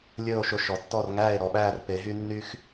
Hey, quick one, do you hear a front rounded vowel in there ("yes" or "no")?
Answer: yes